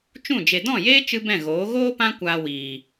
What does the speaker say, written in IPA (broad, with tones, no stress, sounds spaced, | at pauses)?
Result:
t͡ʃ ũ˦˨ d͡ʒ e˨ d ɔ̃˦˨ j eː˦ t͡ʃ ɨ˦ b ɛ̃˦˨ ɣ oː˨˦ ɣ oː˦ p ã˦ kʷ aː˧ w iː˨